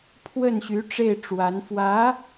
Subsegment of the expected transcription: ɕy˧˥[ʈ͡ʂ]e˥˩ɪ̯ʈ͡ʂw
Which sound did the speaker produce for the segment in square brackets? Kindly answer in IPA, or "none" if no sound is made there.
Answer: ʈ͡ʂ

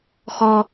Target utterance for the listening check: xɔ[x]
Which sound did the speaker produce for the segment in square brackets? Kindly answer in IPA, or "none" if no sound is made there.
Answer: none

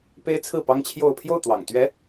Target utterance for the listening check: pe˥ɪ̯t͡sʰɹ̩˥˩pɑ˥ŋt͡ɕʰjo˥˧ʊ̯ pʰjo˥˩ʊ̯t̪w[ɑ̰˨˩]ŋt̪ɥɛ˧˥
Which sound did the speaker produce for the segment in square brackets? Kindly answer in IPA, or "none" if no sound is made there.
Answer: ɑ̰˨˩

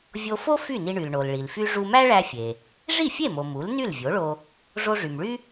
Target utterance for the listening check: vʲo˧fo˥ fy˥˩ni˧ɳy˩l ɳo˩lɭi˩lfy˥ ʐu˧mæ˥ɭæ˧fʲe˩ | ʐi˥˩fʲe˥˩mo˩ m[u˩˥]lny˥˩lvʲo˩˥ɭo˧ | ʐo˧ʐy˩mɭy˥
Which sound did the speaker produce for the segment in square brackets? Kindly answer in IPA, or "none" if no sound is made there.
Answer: u˩˥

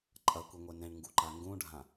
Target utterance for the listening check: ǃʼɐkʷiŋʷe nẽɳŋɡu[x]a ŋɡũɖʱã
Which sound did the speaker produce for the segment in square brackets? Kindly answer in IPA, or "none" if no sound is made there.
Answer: ǃ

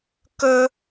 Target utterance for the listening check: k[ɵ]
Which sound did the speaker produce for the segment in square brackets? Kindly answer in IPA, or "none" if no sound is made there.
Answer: ɵ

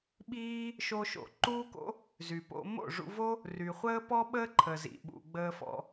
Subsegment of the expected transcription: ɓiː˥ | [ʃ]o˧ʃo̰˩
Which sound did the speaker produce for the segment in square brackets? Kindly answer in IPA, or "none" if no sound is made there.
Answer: ʃ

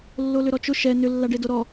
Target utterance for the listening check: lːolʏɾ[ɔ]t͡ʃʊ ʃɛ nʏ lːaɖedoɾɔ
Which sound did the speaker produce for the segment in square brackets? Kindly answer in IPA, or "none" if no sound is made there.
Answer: ɔ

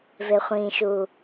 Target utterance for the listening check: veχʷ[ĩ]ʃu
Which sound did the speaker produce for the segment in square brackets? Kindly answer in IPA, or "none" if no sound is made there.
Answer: ĩ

